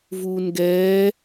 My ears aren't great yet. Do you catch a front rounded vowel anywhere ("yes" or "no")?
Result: no